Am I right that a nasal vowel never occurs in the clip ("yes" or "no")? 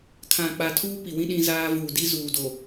no